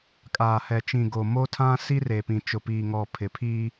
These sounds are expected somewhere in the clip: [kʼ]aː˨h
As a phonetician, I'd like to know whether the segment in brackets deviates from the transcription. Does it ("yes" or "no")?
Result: no